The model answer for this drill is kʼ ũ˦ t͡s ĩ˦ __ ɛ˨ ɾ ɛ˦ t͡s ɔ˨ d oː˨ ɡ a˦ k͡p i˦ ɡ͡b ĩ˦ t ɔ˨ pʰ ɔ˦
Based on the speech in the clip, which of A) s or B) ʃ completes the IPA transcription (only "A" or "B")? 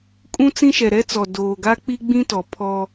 B